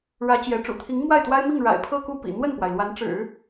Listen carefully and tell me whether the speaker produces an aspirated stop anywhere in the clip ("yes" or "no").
yes